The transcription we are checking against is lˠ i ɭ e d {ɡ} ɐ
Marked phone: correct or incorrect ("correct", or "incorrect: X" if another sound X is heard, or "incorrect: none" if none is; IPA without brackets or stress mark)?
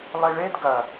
correct